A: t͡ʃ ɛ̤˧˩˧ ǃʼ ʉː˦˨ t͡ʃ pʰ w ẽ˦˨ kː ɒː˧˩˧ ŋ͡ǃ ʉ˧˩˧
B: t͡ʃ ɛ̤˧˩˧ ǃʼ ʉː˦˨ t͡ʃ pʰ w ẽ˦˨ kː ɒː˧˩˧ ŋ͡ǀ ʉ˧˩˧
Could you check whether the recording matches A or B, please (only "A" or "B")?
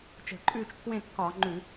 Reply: A